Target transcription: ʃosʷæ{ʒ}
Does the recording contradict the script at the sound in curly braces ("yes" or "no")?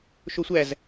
yes